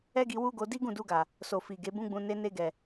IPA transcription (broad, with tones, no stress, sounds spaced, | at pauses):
ɛ˦ ɡ i˧ w u˦ ɡ o˧ d i˦ ɡ ũ˦˨ d u˧ ɡ a˨ | s o˨ f i˨ ɡ e˨˦ b ũ˦ ɡ͡b ũ˧ n e˧ n e˧ ɡ ɛ˨